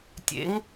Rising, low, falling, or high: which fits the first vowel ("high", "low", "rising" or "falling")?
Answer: rising